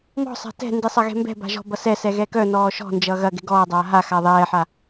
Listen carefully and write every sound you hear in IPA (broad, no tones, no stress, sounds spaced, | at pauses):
m ɔ̤ sˤ a̤ t ɛ̤ n d i sˤ ɐ ɣ ɛ̤ m b ɛ̤ b a̤ ʒ ɔ̤ b ʌ s ɛ s ɛ ɣ ɛ k œ n ɔː ʃ ɔ̤ n d͡ʒ ʌ ɣ ɐ ɡ ɛ̤ ɡ ɔː dˤ aː ɦ a x a ðˤ ɛː ħ a